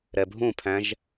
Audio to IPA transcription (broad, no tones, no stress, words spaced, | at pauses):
ɾɛbʱũpʰæ̃ʒ